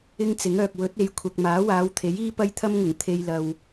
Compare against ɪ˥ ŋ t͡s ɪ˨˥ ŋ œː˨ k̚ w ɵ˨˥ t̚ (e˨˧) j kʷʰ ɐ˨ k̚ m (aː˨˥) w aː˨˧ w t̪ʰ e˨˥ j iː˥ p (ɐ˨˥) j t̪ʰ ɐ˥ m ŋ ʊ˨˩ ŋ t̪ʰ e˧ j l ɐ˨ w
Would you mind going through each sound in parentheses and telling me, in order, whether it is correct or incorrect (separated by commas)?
correct, correct, incorrect